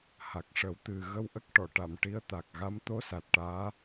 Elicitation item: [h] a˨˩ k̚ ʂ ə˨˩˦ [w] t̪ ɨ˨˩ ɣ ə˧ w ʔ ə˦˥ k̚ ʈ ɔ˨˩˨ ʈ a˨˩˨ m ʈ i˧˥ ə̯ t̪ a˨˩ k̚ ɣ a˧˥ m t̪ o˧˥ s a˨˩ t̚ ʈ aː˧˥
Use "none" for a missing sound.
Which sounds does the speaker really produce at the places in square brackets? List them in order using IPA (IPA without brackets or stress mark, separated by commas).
h, w